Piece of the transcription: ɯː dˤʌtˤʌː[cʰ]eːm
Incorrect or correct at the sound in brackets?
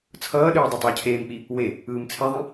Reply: correct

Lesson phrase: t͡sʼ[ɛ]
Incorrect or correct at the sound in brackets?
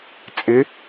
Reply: incorrect: ɪ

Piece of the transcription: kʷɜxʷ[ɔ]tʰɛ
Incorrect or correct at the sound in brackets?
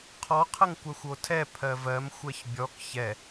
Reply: incorrect: o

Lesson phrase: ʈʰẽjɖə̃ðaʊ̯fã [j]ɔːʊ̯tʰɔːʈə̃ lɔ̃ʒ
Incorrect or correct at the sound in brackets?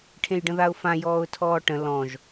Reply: correct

